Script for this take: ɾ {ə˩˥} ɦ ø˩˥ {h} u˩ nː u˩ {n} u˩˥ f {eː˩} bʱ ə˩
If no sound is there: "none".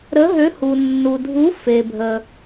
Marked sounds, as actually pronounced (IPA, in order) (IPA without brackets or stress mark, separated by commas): ə˩˥, h, dʱ, e˩